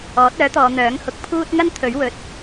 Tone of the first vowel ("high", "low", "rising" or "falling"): rising